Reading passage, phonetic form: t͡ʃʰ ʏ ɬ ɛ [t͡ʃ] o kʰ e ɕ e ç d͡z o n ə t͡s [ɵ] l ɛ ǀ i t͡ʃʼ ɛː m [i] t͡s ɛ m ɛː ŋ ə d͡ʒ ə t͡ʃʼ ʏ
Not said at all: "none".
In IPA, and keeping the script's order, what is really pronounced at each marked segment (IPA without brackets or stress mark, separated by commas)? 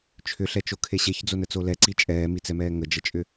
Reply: t͡ʃ, o, i